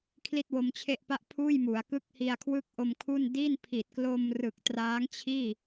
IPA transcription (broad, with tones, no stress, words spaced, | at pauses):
kʰli˥˩t̚wo˧mt͡ɕʰe˥˩ʔpa˥˩ʔ pʰuː˥˩jmu˩˦a̯kɯ˥˩k̚ hi˧a̯kʰwɯ˥˩k̚ʔo˧mkʰu˥˩n di˥˩npʰi˨˩t̚klo˧m rɯ˨˩k̚traː˦˥ŋt͡ɕʰiː˥˩